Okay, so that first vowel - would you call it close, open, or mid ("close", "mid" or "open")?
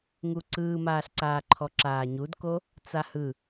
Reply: close